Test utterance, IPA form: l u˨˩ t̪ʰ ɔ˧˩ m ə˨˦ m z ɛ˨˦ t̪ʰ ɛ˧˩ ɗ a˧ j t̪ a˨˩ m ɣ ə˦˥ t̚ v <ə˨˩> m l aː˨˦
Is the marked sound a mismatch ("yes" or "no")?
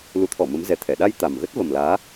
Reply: no